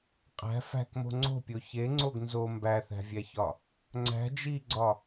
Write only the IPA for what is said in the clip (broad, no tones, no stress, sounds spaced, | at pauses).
qʼ æ̤ f æ̤ k m o̤ ŋ͡ǀ o̤ pʲ o ç e ŋ͡ǀ o ɡ n z o m b æ θ æ̤ vʲ æ ç ɒ | ŋ͡ǀ æ̤ d͡ʒ i ɡ͡ǀ ɒ